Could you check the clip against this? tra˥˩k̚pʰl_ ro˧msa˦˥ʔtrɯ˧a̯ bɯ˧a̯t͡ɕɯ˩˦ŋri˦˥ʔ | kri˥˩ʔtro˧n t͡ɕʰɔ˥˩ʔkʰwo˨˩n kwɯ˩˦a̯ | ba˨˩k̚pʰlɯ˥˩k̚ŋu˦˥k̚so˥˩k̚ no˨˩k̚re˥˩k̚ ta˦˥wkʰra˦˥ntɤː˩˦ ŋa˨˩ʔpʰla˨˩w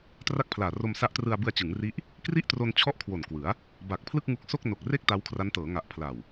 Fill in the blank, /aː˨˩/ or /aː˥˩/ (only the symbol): aː˨˩